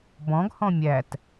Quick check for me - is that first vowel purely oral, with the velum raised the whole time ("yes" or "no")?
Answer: no